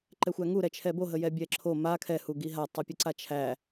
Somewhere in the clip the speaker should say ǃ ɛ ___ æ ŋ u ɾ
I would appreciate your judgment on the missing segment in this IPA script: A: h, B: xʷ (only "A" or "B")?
B